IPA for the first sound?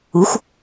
u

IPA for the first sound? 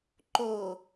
ǃ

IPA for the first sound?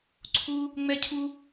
ǀʰ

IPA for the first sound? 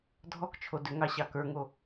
dʱ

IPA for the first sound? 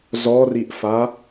z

